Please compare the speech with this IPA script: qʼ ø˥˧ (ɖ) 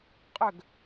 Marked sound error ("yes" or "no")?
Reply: yes